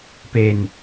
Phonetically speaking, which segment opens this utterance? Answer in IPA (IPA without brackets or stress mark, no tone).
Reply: p